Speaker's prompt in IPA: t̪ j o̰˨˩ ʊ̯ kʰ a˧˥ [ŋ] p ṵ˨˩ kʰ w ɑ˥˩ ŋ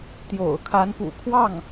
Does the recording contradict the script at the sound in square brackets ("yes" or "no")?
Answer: yes